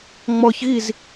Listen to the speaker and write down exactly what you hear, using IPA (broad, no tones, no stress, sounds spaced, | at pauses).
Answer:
ŋ͡m ɔ ç ɣ i z